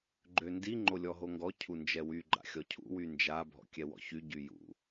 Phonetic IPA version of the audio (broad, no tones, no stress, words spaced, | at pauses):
ɡ͡ǃøndi ŋ͡ǃolʲɔɦoŋɡɔ cʰund͡ʒɛwy ɡ͡ǃa̰xʲɔcʰṵ wynd͡ʒa bʱɔ̰kʲɛwɔ̰çy ɟyjṵ